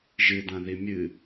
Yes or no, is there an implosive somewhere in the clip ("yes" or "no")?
no